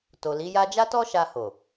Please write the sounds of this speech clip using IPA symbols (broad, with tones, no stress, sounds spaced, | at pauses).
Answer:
t o˨ l i˨˦ j a˦ d͡ʒ a˦ t ɔ˦ ʃ a˧ h o˨